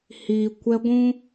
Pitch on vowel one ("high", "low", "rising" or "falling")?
low